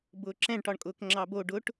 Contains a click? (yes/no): yes